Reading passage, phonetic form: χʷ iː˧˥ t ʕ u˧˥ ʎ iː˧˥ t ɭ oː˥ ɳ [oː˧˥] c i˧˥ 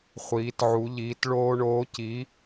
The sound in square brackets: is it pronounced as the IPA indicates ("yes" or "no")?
yes